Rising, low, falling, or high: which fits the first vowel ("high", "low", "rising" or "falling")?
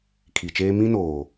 low